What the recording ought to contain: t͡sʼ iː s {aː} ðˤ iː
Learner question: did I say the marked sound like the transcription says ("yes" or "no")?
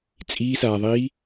yes